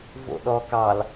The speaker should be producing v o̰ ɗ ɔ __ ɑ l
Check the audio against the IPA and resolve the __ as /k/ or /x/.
k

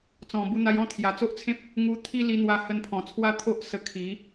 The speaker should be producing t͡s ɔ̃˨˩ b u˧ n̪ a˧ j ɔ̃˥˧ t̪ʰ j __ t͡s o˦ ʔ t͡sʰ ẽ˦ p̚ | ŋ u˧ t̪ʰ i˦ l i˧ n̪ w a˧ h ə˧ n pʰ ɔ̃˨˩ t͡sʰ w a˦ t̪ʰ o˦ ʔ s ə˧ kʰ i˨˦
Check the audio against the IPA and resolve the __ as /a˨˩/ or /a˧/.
a˨˩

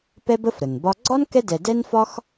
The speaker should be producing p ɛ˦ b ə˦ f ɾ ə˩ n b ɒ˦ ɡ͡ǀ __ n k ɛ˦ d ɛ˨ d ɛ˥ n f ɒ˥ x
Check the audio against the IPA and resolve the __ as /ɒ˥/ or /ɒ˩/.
ɒ˥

